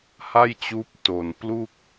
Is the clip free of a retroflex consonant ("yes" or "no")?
yes